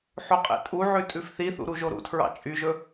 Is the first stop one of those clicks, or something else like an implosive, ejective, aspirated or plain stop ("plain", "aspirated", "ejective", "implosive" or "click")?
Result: ejective